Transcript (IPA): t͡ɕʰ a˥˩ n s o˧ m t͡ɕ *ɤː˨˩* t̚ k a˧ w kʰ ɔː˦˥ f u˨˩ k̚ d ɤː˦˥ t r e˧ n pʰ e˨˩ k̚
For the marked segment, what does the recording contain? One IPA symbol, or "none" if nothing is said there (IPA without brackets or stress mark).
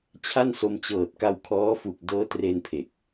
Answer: ɤː˨˩